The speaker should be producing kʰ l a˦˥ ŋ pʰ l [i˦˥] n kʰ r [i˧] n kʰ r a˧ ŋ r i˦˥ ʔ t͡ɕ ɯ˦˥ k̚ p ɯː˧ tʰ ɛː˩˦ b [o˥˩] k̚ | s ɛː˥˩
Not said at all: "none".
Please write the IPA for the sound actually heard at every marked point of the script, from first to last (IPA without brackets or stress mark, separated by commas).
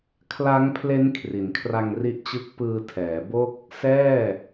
e˦˥, i˩˦, o˥˩